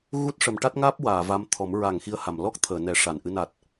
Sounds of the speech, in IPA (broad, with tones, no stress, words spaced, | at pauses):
ɣu˦˥t̚ʂə˨˩˦mʈa˦˥t̚ŋaː˦˥p̚ waː˨˩˨va˧m t̪ʰɔ˨˩˦m ɹa˨˩˨ŋ xi˧ə̯ha˨˩˨m lɔ˦˥k̚t̪ʰəː˨˩˨ nɛ˨˩˦ ʂa˨˩˨nʔɨ˧ na˨˩t̚